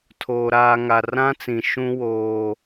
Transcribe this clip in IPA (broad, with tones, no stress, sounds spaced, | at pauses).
tʰ oː˨ ɾ aː˨ ŋ a˨ r ã˦ t͡s ĩ˨ ʃ ũ˦ w oː˦